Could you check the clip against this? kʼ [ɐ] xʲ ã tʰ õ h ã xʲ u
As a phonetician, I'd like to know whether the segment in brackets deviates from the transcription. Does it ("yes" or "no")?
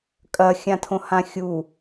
no